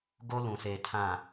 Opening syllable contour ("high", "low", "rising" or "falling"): high